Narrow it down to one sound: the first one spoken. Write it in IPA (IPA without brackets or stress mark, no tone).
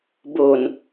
b